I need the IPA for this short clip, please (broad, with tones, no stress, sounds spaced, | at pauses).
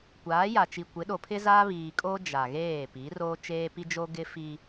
kʷ aː˨˦ j a˨ t͡ʃ i˨ kʷ ɪ˨˦ ɗ o˨ pʰ ɪ˦ z aː˦ β iː˨ kʼ o˦ d͡ʒ a˨ ɣ eː˦˨ p i˨˦ r o˦ t͡ʃ eː˦ p i˦ d͡ʒ o˦ ɡ ɪ˦ f i˦